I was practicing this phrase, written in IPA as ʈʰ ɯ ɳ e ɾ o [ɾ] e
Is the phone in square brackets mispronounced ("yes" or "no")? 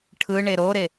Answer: no